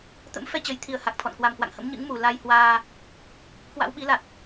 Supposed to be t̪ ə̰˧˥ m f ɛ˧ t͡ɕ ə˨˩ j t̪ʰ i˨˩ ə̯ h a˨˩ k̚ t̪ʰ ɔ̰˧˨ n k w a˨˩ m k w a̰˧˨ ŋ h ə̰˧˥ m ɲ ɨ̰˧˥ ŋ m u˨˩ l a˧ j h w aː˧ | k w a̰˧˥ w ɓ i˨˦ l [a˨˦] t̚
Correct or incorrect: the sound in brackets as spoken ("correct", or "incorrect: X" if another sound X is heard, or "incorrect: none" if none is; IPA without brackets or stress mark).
incorrect: a˨˩